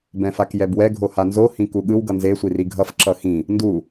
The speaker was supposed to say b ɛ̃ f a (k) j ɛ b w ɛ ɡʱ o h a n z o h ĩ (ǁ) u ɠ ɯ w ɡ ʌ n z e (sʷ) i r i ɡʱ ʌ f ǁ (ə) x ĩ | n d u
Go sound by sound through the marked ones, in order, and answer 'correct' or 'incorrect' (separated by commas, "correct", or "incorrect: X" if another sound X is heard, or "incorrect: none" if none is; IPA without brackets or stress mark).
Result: correct, incorrect: k, correct, incorrect: ʌ